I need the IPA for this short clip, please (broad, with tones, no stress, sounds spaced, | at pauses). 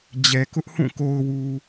d͡ʑ ɛ˨ k ʊ˦ ʔ h ũ˦˨ k o˨ ʊ̯ w u˨